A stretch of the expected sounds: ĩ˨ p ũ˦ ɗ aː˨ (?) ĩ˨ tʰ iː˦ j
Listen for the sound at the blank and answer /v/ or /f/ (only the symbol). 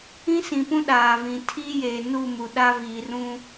v